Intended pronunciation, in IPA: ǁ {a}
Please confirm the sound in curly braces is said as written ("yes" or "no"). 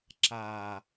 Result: yes